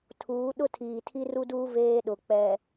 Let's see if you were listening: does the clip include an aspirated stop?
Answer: yes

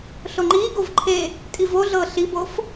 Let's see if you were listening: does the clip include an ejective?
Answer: yes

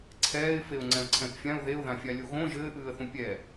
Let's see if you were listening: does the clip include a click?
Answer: yes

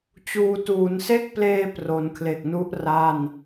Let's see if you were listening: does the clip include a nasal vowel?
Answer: no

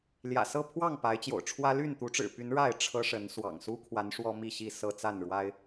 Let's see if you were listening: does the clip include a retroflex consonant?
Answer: yes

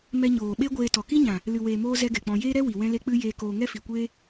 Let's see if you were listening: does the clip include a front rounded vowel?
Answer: no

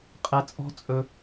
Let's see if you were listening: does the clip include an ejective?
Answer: yes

